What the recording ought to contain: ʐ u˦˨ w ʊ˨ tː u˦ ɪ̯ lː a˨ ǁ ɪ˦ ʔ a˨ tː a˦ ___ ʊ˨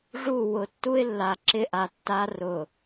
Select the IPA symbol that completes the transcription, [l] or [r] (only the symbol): r